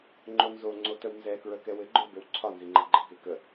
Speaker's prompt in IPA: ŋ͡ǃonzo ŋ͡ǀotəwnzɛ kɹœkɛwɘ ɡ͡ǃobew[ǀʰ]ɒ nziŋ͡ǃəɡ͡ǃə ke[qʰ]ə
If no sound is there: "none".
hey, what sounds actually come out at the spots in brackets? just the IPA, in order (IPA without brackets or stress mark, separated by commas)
ǀʰ, k